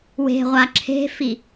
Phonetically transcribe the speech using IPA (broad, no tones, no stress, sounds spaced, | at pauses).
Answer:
w e̤ ʁʷ a ǁʰ e̤ f i